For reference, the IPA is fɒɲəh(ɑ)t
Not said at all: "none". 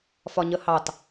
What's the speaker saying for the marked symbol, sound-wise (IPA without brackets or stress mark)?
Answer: ɑ